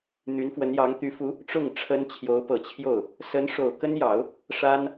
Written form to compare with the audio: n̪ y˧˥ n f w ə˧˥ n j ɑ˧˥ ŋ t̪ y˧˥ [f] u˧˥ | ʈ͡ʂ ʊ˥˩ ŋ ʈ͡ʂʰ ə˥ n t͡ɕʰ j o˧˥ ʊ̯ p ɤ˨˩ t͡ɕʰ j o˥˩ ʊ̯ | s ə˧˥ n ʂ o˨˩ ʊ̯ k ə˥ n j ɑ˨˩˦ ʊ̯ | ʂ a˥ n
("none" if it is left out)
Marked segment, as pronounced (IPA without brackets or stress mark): f